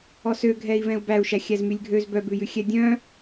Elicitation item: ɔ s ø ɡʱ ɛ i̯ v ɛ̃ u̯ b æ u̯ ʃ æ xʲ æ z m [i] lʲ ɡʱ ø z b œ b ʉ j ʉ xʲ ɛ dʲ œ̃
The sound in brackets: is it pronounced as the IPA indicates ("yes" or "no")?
no